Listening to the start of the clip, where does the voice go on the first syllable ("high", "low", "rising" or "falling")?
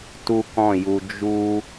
high